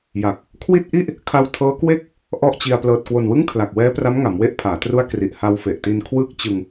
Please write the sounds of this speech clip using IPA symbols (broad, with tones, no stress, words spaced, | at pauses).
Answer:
ja˨˩k̚ | kʰwi˥˩t̚ʔi˥˩ʔ | kʰa˧wtʰɤː˦˥kwe˥˩k̚ | ʔɔ˥˩ʔt͡ɕi˧a̯ plɤː˨˩t̚kwo˨˩nwɯ˥˩ŋ kʰla˨˩k̚wɛː˦˥pra˦˥mŋa˩˦m we˦˥ʔpʰaː˩˦tru˦˥a̯ kri˨˩ʔha˧wfe˨˩ʔti˧n kʰwɯː˥˩k̚t͡ɕɯ˧ŋ